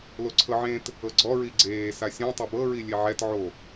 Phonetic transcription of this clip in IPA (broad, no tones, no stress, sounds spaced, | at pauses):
l o ǀʰ ɤ ʕ ẽ t | ɤ ɡ͡ǀ ɔ ɹ i ɡ͡ǀ eː s a sʲ ɛ̃ tˤ ɛ b ɤ ɹ i lʲ e ʕ ɛ t ʕ o